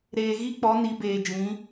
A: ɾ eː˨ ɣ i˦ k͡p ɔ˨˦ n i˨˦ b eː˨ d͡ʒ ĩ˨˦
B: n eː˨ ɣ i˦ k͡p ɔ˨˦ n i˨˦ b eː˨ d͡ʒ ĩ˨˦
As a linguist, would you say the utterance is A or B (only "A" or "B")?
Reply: A